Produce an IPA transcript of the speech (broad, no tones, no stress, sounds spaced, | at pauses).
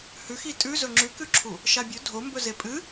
h ʉ x i tʼ ʉ z ɵ ŋ͡ǁ ʉ k ʉ ǁʰ u | ʃ a bʲ ɵ dʱ o m b ɵ z e pʼ ɨ